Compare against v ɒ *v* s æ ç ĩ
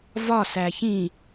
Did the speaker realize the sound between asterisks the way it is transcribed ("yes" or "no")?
no